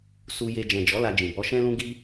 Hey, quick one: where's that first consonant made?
tongue tip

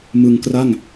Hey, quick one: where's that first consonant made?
lips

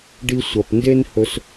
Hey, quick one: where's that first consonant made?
retroflex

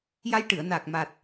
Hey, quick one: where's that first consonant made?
palate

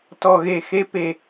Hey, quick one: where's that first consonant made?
tongue tip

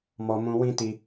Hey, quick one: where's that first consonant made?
lips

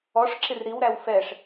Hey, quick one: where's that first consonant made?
retroflex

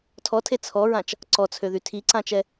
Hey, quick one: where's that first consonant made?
tongue tip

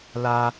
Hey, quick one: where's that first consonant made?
tongue tip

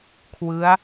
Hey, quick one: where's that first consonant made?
velum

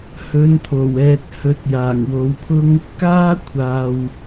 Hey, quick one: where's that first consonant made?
throat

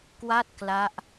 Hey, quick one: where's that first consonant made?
velum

